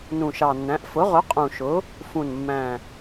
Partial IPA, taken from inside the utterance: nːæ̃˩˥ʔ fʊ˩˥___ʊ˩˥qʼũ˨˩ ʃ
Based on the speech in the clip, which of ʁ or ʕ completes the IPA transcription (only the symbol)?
ʁ